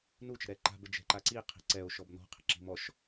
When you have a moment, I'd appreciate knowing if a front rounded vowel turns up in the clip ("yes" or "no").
no